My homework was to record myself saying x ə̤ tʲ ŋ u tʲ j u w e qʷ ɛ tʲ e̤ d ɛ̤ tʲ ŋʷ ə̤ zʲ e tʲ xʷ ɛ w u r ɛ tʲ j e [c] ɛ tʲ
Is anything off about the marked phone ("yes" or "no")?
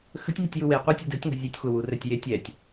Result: yes